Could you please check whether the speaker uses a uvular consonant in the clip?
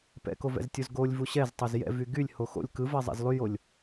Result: no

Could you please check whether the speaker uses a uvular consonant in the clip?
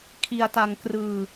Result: no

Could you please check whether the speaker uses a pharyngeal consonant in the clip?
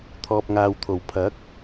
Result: no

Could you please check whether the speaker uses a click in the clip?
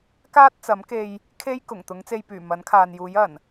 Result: no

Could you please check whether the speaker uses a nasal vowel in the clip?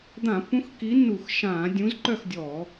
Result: yes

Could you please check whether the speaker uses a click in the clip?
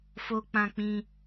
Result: no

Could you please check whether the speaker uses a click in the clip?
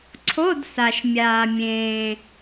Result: yes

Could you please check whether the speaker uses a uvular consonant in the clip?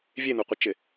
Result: yes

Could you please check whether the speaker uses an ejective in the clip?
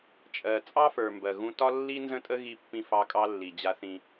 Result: yes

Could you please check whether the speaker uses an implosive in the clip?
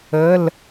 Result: no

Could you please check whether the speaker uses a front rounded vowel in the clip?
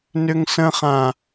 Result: yes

